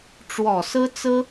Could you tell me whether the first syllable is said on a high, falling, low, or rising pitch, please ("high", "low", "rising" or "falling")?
low